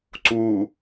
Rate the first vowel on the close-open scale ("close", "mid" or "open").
close